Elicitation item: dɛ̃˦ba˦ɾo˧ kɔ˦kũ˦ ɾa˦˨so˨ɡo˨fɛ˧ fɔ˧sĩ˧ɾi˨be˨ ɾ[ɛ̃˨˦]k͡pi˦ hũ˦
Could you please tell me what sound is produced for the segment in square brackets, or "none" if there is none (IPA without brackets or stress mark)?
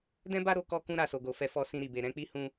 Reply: ɛ̃˨˦